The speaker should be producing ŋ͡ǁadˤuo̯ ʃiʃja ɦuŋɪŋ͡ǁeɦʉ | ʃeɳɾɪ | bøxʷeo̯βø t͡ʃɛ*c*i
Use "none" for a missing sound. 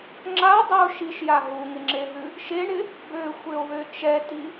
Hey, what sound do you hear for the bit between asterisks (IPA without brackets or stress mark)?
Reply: t